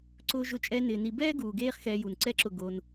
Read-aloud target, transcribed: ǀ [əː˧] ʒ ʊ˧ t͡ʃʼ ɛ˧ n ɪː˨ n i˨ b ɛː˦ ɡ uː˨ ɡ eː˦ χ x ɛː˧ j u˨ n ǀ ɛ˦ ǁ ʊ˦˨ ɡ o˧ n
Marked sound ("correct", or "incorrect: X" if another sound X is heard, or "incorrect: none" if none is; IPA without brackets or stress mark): incorrect: ʊː˧